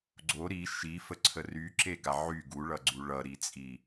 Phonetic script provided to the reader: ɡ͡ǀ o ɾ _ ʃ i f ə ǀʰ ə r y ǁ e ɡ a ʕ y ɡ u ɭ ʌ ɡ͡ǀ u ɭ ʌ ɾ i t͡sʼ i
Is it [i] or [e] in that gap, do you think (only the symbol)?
i